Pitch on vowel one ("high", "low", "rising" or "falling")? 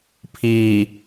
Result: low